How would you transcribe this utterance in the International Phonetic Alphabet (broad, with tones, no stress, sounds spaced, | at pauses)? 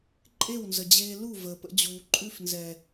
ǃʼ e˦˨ w n z ə˨ d͡ʑ eː˧ l u˦˨ v əː˨ p ə̰˧ d͡ʑ uː˨ ǃʼ ʉ˧ f n z ɛː˨